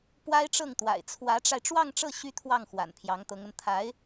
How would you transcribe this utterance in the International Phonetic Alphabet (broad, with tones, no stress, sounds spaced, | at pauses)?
p w a˥ ɪ̯ ʈ͡ʂ ɤ˥˩ ŋ t̪ w a̰˨˩ ɪ̯ t͡sʰ w ä˧˥ ʈ͡ʂ a˧ ɪ̯ ʈ͡ʂ w ɑ˥˧ ŋ ʈ͡ʂ ɤ˥˩ ɕ y˥ t̪ʰ w ɑ˥˩ ŋ x w a̰˨˩ n pʰ j ɑ˧˥ ŋ t̪ ɤ˧˥ ŋ ə˧ n t̪ʰ a˧˥ ɪ̯